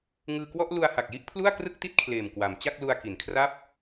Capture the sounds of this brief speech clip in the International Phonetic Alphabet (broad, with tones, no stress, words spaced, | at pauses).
ŋɯː˧kwɔ˥˩ʔ lu˧a̯ha˨˩k̚ ji˥˩ʔ pʰlu˥˩a̯krɯ˥˩k̚ti˥˩t̚ kʰleː˨˩mkwa˩˦m t͡ɕa˥˩k̚lu˧a̯ ki˩˦n kʰra˦˥p̚